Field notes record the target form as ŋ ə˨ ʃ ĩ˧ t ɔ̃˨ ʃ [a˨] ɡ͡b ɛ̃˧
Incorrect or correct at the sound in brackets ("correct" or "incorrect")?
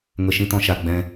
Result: correct